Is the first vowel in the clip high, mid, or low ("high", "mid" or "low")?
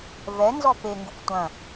mid